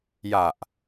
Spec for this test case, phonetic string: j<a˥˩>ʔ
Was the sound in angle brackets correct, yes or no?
no